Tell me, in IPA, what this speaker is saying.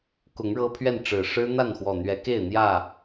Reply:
kʊ˨˦ŋɻɤ˦pʰɥɛ˥˨n ʈ͡ʂɻ̩˨˩ʂɻ̩˦n̪a˥˨nxwɔ˨˩ n̪ɥɛ˨˦ke˥˨ɪ̯n̪jä˥˨

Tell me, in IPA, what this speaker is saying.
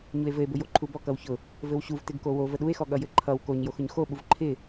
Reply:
ɲue̯vɘe̯bʊjo ǃʰubɔ kʌwçʊ | vɘwɕuv tɪɡkowo vəɗue̯xɔ ɠʌjɘǃʰʌw koɲ joxʊɲxoɓuv ǃʰɪ

